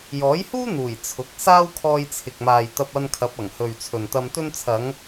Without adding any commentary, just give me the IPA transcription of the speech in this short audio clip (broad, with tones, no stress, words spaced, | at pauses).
jɔː˨˥jhuː˥n̪uː˨˩j t͡sʰʊ˨˥k̚ saː˥wkʰɔː˧jt͡sʰɪ˨k̚maː˨j t̪ɐ˧p̚ɐ˧nkʰɐ˨˥p̚ɐ˨˩ŋ hɵ˨ɥt͡sʰɵ˨nt̪ɐ˧m t̪ɵ˧nt͡sʰɐ˨˧ŋ